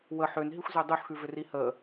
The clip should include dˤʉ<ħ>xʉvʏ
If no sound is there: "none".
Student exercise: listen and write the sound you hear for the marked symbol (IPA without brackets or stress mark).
ħ